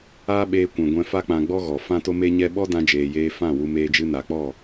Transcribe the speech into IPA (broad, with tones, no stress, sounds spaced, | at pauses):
aː˦ ɓ eː˧ kʷ ɛ̃˨ ɡʷ ɛ̃˧ f a˦ k͡p ã˧ ɡ͡b ɔ˦ ɣ ɔ˨ f ã˦ t o˦ m e˦ ɲ ɛ˦ ɓ ɔ˦ d ã˧ d͡ʒ eː˨ j eː˧ f ã˦˨ w u˧ m eː˧ d͡ʒ ɨ˧ n a˨ k͡p ɔ˦˨